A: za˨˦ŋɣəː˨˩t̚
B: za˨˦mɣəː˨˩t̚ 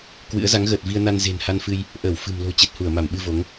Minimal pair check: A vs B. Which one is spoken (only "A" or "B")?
A